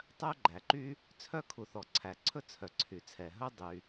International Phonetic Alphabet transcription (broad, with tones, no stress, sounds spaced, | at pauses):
tˤ œ˥ ɡ͡ǃ æ˩ ǃ y˥ | t͡sʰ œ˥ kʰ u˩ θ ɔ˩ ǀʰ æ˩ ǀʰ ɵ˥ t͡sʰ œ˩ ǀʰ y˩ t͡sʰ ɛ˩ ɦ ɵ˥ dˤ y˩